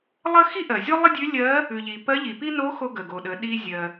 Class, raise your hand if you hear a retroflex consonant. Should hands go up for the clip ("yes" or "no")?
no